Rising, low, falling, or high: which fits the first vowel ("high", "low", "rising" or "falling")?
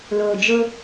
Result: low